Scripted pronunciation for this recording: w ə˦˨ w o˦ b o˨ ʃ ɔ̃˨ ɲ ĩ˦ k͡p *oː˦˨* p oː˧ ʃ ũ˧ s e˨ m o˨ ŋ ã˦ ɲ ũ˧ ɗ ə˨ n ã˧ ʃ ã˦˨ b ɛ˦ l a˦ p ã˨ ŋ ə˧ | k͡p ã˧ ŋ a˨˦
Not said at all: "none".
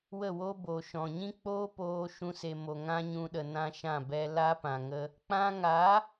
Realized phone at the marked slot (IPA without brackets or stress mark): oː˦